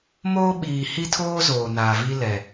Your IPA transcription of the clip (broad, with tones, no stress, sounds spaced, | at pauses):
m oː˦ ɓ iː˨ h i˦ tʰ oː˦ z oː˨ n a˨ v i˦ l ɛ˨